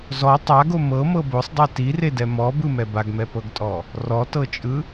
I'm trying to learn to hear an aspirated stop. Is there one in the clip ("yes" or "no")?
no